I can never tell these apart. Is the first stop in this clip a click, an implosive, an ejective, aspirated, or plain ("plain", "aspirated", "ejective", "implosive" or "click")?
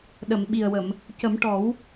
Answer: implosive